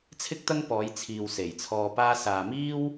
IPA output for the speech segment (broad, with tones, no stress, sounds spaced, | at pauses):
t͡sʰ ɪ˥ k̚ t̪ ɐ˥ ŋ p ɔː˨˧ j t͡sʰ iː˨ w s e˨˩ j t͡sʰ ɔː˧ p aː˥ s aː˨ m iː˥ w